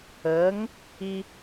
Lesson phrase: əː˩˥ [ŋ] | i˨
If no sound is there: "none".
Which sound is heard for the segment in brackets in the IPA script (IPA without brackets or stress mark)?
ŋ